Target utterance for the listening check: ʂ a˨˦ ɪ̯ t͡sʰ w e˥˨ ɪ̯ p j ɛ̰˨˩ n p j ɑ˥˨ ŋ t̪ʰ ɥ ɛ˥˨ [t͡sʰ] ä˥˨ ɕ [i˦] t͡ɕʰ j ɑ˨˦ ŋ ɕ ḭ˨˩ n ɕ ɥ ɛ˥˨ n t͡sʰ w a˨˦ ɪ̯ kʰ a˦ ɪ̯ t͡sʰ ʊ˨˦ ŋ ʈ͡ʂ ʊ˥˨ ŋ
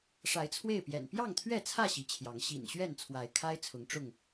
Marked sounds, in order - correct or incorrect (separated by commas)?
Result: correct, incorrect